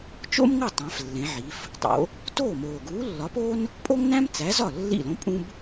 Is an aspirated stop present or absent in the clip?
absent